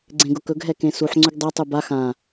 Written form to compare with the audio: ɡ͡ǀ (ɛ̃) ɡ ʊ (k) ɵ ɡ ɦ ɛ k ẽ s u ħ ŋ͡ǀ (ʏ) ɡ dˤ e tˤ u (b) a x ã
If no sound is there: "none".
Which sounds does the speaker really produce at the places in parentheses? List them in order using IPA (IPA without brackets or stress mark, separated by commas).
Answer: ẽ, k, ʏ, b